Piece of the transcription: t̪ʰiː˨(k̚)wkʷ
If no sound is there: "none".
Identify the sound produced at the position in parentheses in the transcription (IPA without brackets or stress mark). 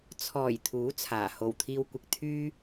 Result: none